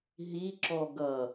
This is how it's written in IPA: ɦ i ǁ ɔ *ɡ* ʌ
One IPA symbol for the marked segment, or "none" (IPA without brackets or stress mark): ɡ